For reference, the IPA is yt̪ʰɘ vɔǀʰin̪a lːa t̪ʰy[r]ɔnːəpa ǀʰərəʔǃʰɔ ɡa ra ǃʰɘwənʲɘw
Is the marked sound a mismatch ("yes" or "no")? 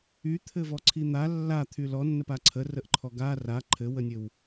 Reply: yes